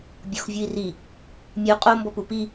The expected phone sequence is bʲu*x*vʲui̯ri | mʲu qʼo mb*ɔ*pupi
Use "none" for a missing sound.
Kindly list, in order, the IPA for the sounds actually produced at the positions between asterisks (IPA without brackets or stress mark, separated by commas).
x, ɔ